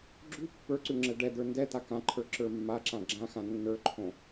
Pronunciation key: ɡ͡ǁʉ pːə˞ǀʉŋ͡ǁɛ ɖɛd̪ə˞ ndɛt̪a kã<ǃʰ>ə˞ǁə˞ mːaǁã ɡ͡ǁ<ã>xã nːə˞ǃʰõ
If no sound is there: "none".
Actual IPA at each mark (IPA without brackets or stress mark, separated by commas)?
ǃʰ, ã